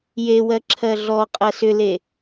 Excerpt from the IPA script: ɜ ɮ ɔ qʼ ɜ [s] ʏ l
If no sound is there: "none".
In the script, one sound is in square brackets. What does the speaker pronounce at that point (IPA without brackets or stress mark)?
s